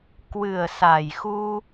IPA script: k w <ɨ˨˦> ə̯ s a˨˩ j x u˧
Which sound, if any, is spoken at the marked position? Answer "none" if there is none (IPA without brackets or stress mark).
ɨ˨˩